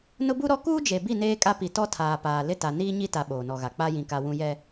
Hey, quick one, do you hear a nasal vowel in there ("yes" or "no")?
yes